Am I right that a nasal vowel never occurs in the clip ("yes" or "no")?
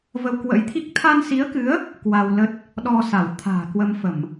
yes